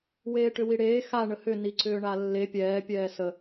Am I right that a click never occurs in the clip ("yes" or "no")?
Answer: no